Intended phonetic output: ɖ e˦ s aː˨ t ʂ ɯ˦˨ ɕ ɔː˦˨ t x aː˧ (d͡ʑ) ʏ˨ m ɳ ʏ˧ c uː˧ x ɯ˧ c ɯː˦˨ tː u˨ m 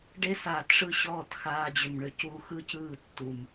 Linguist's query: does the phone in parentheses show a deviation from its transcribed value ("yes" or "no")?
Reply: no